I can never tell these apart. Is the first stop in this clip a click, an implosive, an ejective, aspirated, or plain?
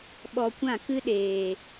implosive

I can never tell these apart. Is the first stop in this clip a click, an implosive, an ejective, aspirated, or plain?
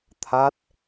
aspirated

